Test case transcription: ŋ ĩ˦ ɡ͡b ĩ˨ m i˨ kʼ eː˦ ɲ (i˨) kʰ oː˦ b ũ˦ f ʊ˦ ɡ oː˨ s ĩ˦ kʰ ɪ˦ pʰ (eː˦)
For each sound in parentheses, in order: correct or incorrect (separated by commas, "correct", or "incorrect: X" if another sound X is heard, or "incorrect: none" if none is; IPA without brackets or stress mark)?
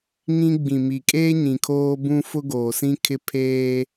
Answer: incorrect: ĩ˨, correct